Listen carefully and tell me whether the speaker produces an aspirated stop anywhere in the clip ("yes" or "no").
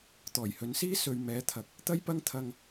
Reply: yes